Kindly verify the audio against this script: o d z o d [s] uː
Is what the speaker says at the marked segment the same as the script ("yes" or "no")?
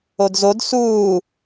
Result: yes